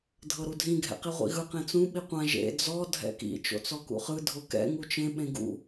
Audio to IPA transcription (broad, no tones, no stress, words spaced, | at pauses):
dʱɤɾudʱĩ ɡʱɛ̰qiʁʷḭɣɯ qẽt͡sũ ɓiqʷã ʒḛ d͡zɔ dʱɛ̰kḭ t͡ʃo̰t͡sɔkṵχɯ dʱokɛ̰ ŋut͡ʃẽ ɓẽɡṵ